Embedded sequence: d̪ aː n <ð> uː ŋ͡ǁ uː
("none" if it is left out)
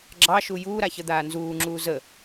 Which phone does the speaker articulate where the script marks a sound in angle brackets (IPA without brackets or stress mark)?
z